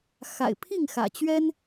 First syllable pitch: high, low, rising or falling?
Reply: low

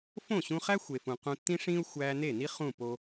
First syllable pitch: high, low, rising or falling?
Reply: falling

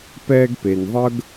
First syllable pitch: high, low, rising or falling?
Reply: high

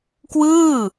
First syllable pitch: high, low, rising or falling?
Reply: falling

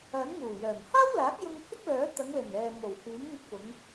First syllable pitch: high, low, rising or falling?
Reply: rising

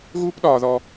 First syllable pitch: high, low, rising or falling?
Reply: high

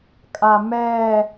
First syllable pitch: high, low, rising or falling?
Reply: low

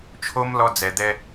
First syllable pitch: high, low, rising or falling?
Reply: high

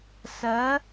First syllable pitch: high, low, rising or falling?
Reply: rising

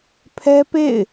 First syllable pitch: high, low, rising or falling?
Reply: high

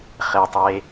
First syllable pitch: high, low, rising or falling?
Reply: low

